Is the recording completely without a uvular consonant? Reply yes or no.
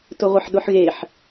no